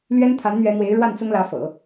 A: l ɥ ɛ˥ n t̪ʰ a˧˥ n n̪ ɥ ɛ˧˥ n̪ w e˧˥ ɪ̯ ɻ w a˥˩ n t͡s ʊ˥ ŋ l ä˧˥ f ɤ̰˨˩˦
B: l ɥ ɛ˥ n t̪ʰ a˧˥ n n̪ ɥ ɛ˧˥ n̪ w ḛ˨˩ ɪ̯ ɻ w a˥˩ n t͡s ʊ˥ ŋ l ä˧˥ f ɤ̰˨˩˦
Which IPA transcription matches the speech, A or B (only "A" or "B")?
A